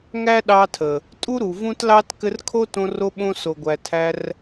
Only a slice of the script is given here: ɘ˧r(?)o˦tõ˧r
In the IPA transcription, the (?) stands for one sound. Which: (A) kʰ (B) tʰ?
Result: A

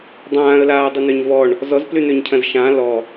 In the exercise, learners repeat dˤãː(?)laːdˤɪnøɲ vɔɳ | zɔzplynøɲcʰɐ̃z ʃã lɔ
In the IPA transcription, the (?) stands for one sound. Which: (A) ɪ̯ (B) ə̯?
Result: B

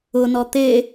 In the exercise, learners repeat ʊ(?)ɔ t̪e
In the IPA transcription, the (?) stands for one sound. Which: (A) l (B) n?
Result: B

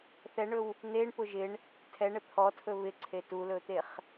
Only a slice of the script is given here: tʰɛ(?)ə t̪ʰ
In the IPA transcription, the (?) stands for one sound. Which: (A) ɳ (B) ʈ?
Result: A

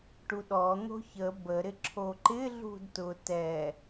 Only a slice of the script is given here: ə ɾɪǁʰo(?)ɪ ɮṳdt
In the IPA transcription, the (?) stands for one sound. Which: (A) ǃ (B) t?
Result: A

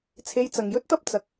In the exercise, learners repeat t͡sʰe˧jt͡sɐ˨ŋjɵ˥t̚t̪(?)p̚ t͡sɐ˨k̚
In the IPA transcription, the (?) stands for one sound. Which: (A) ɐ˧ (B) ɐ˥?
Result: B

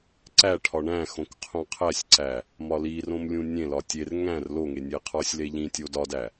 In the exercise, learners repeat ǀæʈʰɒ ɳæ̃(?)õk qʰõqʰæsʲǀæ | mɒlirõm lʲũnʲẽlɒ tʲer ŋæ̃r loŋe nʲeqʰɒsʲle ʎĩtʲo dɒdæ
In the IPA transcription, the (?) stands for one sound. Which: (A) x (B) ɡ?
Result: A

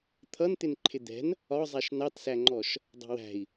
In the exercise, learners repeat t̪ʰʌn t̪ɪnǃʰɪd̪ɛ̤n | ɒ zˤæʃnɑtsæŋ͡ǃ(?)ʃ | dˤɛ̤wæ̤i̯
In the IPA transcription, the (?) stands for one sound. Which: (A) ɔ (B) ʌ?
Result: A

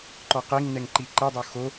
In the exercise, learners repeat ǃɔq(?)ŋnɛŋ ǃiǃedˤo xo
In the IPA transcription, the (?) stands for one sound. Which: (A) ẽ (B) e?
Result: B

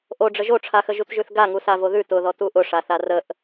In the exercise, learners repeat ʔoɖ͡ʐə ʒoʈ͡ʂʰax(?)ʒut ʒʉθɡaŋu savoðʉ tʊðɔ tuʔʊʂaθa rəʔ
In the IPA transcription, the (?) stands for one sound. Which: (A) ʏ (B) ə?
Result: B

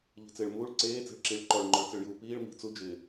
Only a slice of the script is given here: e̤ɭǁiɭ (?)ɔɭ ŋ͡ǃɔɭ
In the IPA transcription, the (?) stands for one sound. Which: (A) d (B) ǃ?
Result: B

